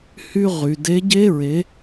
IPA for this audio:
h y˥ ʁ y˧ d e˧˥ ɟ e˥ ɹ e˧˥

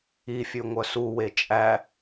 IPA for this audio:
i fʲ ʉ ŋʷ œ s u w e t͡ʃʼ æ

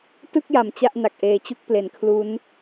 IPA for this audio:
t ɯ˥˩ k̚ j a˩˦ m t͡ɕ a˥˩ ʔ n a˨˩ k̚ ʔ eː˩˦ t͡ɕ u˦˥ k̚ p l e˩˦ n kʰ l u˦˥ n

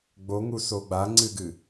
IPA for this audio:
ɡ͡b o ŋ u s o ɡ͡b a ŋ͡ǀ ɨ ɡ ɨ

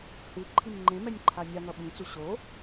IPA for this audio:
h ɯ ǃʰ i m ŋ͡ǃ ẽ m ɛ nʲ ǃʰ a nʲ a ŋ ʌ ɓ ĩ t͡s u ɕ o

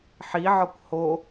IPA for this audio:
ħ i ʕ ɒ kʷ h o

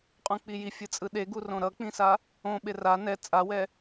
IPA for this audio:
qʼ ũ k͡p i j i fʲ ɯ t͡sʼ ɯ ɗ e ɡ u r õ ɾ ʌ k͡p ĩ s a | õ ɓ e r a n ɛ t͡sʼ a w ɛ

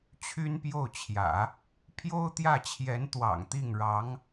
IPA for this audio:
t͡ɕʰ y˥ n p j o˥˩ ʊ̯ t͡ɕʰ j ä̰˨˩˦ | pʰ j o˥ ʊ̯ t̪ j ä˥˩ t͡ɕʰ j ɛ˧˥ n t̪ w ɑ̰˨˩ ŋ t̪ i˥˩ ŋ ɻ ɑ˧˥ ŋ

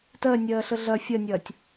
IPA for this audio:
t ɜ nʲ ɜː ɬ ə ɮ ɐ fʲ ɐ nʲ ɐː tʲ

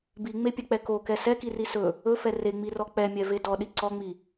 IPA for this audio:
b i ŋ͡m e pʲ ɛ k͡p ɛ k o k ɛ s ɛ k i r i s ɵ | ɵ f ɛ r e ŋ͡m i r ɔ k͡p ɛ mʲ ɛ v e d ɔ ɗ i ǀ ɔ ŋ͡m i

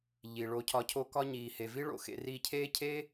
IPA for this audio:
ʎ i˨ ɭ o˧ cʰ ɒ˧ cʰ o˦ k ɒ˦ ɲ iː˨ h e˨ v i˦ ɭ o̰˨ x ḛ˧ r i˧ cʰ eː˦ cʰ eː˦

